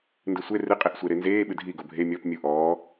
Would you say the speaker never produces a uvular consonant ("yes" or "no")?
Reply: no